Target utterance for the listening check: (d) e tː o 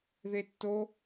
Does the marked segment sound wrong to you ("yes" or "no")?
yes